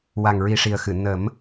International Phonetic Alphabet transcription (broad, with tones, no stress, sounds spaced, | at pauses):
w a˨˩ ŋ ɹ i˨˩ ʂ i˨˩ ə̯ x ɨ˨˩˨ n ə˨˩˦ m